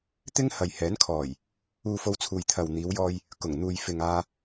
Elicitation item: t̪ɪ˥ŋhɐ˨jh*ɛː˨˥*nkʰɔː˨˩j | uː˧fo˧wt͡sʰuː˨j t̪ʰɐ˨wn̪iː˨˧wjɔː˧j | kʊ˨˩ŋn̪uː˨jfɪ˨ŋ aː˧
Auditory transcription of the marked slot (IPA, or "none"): ɛː˨˥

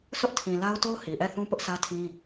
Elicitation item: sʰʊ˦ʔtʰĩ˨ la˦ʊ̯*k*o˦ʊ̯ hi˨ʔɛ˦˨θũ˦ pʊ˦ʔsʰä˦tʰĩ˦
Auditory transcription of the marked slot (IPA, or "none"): t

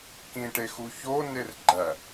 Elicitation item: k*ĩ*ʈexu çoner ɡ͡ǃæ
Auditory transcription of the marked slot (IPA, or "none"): ĩ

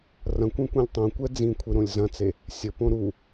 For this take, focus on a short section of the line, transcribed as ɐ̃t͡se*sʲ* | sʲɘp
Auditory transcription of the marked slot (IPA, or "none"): none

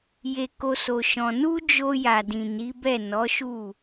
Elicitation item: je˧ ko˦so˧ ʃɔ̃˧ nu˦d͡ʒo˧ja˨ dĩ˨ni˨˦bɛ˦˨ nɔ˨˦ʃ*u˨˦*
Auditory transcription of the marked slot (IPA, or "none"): u˦˨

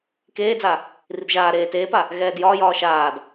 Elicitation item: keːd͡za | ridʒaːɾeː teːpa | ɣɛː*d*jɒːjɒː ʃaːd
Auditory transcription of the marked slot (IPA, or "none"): d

